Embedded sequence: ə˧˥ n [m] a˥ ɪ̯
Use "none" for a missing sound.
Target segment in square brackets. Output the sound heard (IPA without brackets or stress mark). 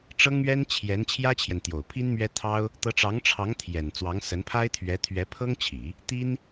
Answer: pʰ